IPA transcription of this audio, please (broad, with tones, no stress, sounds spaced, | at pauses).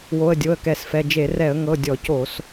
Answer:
w o˩˧˩ ə̯ dʲ o˩˧˩ ə̯ k ɛ˧˩˧ s f ɛ˩˧˩ d͡ʒ e˧˩˧ r ɛ˧˩˧ ə̯ ŋ ɤ˩˧˩ dʲ ɔ˧˩˧ c o˧˩˧ s